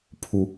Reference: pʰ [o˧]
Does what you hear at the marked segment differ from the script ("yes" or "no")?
yes